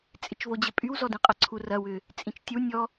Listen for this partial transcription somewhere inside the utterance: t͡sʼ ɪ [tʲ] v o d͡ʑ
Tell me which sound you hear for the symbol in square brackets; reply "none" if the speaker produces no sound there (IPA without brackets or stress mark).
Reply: t͡ʃ